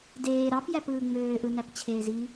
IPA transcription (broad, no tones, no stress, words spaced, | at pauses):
deː ɾɑpjæpɯː ŋ͡møːʔɯnæpt͡ɕʰeːz i